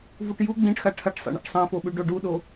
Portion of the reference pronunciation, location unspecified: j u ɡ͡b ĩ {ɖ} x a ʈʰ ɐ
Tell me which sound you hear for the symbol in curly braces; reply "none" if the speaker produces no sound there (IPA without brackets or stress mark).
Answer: ʈ